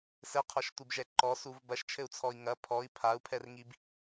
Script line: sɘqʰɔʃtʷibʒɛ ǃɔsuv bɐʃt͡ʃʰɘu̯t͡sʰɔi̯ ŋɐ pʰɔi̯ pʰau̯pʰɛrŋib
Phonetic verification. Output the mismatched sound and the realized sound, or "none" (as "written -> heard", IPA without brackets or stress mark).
none